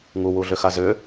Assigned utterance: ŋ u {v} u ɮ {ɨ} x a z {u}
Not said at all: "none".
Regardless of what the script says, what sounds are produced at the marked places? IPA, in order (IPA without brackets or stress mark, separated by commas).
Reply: w, ʏ, ʏ